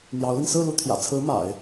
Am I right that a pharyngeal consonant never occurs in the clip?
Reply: yes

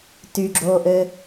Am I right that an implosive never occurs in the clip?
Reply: yes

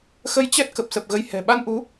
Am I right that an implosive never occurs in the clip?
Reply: no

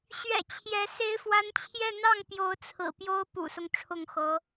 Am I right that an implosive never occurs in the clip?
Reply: yes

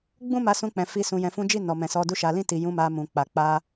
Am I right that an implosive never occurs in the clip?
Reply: yes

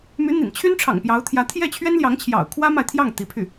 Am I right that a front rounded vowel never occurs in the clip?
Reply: no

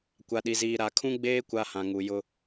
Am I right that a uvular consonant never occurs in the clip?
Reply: yes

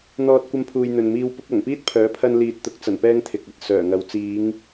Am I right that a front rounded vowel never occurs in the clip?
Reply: no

